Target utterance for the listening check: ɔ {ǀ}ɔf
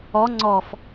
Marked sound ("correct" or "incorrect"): incorrect